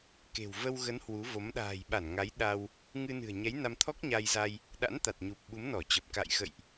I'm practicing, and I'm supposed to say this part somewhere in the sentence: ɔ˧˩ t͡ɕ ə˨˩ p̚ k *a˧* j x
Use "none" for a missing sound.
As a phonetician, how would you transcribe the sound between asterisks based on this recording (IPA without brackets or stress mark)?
a̰˧˨